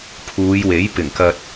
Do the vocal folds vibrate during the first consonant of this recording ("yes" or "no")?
no